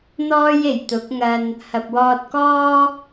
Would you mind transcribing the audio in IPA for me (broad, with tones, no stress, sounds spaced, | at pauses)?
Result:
n̪ ɔː˥ j e˨˩ j t̪ ʊ˨˥ k̚ ŋ ɐ˧ n | h ɐ˨ p̚ w ɔː˧ t̚ k ɔː˥